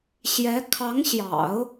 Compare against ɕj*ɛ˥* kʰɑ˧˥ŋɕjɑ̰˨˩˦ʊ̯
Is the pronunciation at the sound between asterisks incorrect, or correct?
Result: incorrect